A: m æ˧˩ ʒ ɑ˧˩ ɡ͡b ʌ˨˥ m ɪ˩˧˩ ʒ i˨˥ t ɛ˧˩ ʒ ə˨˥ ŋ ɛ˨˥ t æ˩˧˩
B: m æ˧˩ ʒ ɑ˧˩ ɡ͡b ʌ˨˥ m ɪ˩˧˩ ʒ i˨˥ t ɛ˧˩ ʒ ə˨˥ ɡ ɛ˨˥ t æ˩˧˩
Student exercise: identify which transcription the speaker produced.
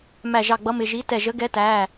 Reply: B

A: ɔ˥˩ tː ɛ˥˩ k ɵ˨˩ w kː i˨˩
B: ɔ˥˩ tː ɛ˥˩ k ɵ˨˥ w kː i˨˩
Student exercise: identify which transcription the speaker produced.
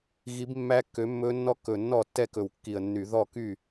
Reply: A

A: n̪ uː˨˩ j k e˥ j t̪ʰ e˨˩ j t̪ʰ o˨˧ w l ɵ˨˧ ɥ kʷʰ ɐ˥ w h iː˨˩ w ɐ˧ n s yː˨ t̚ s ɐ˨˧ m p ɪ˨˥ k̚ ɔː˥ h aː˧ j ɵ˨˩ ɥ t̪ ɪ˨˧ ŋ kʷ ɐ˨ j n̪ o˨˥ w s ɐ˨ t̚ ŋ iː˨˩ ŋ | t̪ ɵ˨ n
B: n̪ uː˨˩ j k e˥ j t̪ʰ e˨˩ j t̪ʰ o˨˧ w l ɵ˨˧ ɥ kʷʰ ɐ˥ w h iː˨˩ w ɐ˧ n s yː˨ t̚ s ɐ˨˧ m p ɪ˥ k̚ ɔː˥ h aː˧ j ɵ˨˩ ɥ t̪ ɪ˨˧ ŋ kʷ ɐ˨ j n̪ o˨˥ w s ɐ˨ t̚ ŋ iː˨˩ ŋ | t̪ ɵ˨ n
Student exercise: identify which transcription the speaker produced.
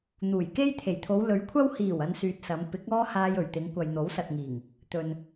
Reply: A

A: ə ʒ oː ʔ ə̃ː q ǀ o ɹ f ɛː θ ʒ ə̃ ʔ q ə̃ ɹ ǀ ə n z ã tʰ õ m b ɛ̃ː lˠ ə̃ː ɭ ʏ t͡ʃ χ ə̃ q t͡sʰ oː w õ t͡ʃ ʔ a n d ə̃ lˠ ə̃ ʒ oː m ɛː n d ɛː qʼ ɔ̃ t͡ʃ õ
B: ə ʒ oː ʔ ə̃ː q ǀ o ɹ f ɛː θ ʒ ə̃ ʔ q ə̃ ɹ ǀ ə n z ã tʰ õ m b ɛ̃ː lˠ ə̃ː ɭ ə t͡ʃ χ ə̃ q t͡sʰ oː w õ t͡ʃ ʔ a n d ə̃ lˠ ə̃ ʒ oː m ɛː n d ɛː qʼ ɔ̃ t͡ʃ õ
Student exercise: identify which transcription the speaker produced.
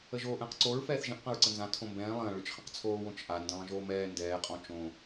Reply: A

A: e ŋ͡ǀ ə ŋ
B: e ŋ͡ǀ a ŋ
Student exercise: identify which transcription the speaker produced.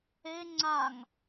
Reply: B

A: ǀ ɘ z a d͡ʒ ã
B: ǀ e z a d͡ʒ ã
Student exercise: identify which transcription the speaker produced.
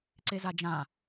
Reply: B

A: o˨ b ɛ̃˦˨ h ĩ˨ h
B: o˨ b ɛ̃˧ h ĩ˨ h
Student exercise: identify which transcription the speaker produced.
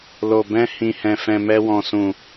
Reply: B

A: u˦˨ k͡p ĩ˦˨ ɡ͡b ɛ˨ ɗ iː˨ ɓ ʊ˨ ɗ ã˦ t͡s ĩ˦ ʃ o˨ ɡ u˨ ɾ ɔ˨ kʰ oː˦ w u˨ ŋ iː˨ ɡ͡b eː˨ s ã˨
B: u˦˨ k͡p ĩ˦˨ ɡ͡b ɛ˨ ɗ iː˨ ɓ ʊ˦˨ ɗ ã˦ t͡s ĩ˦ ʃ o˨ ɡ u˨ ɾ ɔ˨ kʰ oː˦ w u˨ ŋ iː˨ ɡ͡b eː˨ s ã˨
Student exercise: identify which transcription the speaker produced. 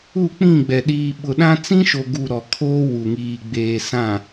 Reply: A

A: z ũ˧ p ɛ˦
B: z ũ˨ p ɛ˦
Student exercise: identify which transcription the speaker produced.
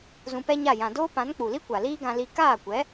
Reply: A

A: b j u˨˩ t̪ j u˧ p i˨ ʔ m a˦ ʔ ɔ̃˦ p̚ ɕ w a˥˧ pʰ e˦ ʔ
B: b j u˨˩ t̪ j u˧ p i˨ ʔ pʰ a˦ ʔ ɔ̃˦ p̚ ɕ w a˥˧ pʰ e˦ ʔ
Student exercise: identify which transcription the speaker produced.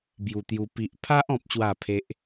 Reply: B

